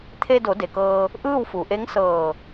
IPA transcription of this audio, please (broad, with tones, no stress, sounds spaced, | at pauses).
t̪ʰ e˧ d o˩˧ d e˩ k ɤː˧ | ʔ ɯː˥˨ w f u˩˧ ʔ e˧˥ ŋ s ɤː˧˩